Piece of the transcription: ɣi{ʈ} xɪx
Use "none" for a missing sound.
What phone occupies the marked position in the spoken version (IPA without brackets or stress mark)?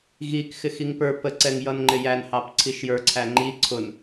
k